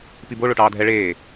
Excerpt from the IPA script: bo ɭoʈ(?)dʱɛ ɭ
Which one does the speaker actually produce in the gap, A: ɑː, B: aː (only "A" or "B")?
A